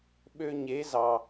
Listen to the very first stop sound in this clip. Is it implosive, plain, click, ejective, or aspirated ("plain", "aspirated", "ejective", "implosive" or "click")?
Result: implosive